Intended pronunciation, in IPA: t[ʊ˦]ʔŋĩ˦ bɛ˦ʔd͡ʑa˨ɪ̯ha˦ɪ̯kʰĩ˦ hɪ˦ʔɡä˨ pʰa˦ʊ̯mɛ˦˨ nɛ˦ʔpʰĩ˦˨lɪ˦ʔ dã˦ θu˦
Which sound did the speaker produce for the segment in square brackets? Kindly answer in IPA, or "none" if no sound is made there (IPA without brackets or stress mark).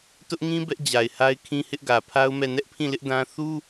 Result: ʊ˦